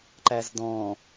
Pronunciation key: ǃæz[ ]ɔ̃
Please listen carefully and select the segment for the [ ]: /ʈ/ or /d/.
d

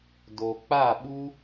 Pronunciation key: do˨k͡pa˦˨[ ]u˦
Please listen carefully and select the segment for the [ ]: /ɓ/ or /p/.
ɓ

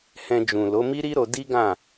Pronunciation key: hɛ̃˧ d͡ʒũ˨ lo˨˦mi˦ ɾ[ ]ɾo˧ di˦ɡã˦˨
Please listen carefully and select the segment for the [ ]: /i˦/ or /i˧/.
i˦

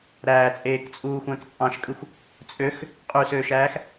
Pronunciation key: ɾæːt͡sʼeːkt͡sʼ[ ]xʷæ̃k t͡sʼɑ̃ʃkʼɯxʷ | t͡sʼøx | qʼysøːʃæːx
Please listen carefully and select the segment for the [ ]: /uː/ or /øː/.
uː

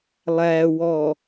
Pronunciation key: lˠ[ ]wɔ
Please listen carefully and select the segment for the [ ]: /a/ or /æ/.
æ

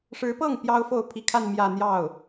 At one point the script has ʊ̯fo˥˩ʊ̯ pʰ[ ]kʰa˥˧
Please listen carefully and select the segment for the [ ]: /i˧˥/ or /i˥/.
i˧˥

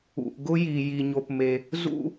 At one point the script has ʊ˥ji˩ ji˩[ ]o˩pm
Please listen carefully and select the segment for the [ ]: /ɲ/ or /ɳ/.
ɲ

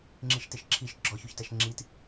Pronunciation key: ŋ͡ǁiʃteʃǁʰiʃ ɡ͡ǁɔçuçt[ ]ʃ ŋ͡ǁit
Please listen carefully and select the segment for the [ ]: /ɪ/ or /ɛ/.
ɛ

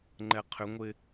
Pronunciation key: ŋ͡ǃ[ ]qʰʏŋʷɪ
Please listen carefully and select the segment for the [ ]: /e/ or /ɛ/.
ɛ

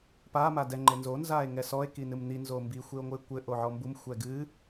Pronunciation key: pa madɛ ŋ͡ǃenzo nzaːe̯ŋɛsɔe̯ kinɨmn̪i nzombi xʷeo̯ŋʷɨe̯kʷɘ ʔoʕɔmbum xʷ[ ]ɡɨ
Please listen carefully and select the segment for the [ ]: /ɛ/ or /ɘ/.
ɛ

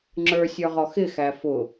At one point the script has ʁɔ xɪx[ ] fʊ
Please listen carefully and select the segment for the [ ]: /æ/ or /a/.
æ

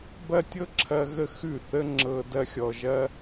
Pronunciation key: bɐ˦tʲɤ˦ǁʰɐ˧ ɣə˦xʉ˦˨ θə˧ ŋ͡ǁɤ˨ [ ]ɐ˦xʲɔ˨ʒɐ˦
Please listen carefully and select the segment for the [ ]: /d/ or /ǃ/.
d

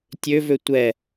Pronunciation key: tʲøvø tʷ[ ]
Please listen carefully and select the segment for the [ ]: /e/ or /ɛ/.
ɛ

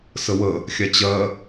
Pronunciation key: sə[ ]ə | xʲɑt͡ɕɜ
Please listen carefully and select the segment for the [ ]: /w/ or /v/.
w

